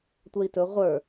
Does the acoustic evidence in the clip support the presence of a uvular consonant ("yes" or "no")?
yes